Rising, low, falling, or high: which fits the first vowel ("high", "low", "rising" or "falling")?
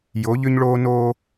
rising